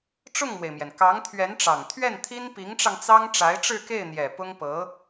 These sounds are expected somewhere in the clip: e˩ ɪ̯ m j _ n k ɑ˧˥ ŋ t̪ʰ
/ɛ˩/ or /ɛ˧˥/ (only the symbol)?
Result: ɛ˩